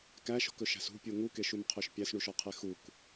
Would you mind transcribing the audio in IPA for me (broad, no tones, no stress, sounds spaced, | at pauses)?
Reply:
k æ ʃ ɔ̤ k ɵ ʃ æ̤ s ṳ pʲ u ŋ u k e ʃ u m qʰ ø ʃ pʲ æ s ɳ u ʃ ɔ qʰ e x u k